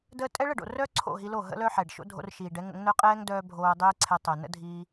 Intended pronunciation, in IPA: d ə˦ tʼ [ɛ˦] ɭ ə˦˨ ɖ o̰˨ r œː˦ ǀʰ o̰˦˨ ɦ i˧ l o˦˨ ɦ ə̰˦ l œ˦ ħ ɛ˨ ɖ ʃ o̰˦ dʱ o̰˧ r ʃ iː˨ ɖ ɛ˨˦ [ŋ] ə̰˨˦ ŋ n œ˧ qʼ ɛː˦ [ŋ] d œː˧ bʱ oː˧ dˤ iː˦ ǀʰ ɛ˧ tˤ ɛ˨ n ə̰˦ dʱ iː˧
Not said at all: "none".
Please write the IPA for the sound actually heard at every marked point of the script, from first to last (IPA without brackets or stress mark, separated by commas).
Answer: ɛ˦, ŋ, ŋ